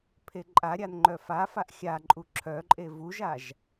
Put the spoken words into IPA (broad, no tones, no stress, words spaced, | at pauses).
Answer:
pʰeǃʼaɾʲan ŋ͡ǃœfafaʔ xʲaǃʼu ǁʰœǃʼe vuʒaʒ